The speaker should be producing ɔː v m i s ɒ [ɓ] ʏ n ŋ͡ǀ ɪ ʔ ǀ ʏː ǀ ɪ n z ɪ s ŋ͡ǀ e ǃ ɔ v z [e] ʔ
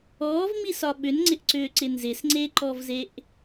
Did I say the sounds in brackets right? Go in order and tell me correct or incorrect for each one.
correct, correct

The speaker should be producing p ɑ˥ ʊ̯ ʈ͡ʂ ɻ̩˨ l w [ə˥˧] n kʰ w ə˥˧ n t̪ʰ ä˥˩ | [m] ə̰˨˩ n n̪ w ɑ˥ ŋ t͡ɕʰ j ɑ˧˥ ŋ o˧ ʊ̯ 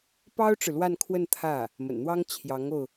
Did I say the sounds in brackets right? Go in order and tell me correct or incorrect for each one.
incorrect: a˥˧, correct

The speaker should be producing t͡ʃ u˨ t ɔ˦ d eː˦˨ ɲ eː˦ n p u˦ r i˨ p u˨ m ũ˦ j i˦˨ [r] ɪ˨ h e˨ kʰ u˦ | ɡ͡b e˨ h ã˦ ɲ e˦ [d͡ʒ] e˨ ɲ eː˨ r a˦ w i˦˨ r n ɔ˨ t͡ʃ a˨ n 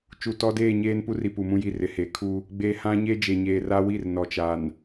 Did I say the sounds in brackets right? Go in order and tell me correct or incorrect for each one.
correct, correct

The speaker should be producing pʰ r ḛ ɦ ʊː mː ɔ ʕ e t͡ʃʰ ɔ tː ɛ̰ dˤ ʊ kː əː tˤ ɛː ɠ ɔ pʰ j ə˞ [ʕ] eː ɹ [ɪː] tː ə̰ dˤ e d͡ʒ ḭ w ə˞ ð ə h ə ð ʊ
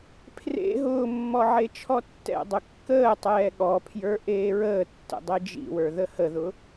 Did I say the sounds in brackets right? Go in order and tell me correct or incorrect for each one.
incorrect: ʔ, incorrect: əː

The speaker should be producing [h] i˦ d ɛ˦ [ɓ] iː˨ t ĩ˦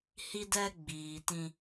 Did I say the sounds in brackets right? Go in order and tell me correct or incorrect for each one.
correct, incorrect: ɡ͡b

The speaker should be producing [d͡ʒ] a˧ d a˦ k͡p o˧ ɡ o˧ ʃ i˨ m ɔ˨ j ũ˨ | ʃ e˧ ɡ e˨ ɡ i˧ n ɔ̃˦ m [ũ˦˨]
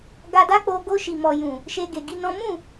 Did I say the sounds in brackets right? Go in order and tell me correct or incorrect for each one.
incorrect: ɡ, correct

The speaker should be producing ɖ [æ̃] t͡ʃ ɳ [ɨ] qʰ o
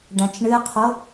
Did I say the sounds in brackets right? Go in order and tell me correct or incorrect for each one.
correct, correct

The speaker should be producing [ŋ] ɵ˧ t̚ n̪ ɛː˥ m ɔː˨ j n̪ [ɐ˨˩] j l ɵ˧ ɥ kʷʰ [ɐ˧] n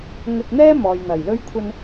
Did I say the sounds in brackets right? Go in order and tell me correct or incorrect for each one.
correct, correct, correct

